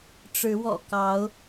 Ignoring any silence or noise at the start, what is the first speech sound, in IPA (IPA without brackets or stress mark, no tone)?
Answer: ʈ͡ʂ